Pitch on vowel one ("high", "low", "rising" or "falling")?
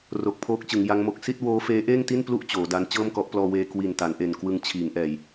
low